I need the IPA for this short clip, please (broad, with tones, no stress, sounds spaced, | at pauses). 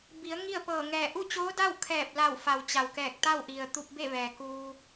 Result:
b i˩˧ ə̯ ŋ i˥˨ ə̯ p ɤː˧˩ ŋ ɛː˧˩ ʔ u˥˨ t͡ɕ oː˧˥ d a˥˨ w kʰ ɛː˧˩ p̚ l a˧˩ w f a˩ w t͡ɕ a˩ w k ɛː˧˩ k̚ t̪ a˥˨ w ʔ i˩ ə̯ t̪ u˧ p̚ b e˥˨ ʋ ɛː˩ k uː˧